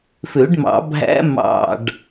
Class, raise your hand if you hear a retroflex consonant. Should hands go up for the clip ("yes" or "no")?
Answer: yes